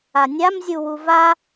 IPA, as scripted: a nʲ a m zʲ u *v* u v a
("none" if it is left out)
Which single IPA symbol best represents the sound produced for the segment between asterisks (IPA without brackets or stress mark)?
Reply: w